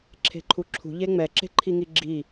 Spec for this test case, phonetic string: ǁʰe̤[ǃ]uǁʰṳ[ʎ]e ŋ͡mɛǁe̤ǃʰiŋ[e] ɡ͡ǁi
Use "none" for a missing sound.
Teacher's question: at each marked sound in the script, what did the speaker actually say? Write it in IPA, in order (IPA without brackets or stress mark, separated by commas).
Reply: ǃʰ, ʎ, i